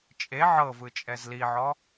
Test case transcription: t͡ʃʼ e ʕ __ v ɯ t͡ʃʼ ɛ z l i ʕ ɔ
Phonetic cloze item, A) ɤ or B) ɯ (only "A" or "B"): A